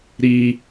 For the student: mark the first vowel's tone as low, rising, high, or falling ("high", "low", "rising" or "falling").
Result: low